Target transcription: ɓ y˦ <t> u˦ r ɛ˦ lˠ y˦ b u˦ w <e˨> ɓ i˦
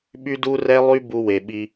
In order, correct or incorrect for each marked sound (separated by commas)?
incorrect, correct